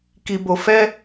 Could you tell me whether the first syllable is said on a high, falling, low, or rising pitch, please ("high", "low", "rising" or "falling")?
low